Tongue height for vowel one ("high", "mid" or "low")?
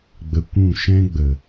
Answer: mid